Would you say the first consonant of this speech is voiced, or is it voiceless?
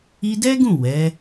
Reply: voiced